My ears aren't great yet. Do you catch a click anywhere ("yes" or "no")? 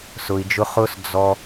no